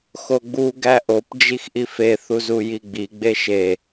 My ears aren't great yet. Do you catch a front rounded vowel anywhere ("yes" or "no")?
no